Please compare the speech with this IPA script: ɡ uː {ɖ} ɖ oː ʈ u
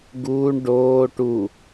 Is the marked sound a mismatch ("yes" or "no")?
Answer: yes